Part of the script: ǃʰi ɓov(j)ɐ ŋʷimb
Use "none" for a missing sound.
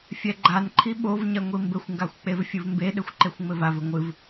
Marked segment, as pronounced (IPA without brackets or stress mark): ɲ